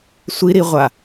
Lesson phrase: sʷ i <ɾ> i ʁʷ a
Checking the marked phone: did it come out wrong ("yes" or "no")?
no